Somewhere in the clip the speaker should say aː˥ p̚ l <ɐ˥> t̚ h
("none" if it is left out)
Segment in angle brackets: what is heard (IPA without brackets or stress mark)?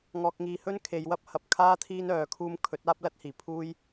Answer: ɐ˥